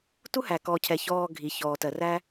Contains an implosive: no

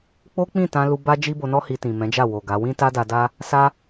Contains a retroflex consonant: no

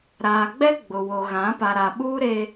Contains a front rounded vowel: no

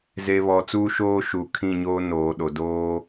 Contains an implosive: yes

